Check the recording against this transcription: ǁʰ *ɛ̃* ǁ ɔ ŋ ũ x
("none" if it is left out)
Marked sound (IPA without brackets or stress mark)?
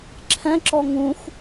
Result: ɛ̃